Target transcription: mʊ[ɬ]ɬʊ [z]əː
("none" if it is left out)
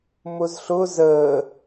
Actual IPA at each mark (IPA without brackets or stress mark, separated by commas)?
z, z